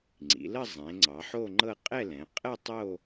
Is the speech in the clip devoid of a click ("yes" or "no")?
no